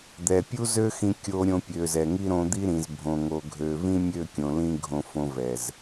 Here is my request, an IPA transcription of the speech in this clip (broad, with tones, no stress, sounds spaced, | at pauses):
d̪ ɛ˨ pʲ u˦ z ø˦ x ĩ˧ kʲ o˧ ɾʲ õ˧ pʲ ø˨ z ɛ˨ ŋ i˦ ɾ õ˧ d̪ i˦ ɾ ĩ˨ z bʱ õ˨ ŋ o˨ ɡʱ ø˨ v ĩ˦ mʲ ø˦˨ kʲ õ˨ l ĩ˧ ɡʱ õ˧ f õ˧ v ɛ˨ z